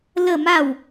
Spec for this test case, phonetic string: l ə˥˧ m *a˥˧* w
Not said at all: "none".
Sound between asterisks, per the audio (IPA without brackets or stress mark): a˥˧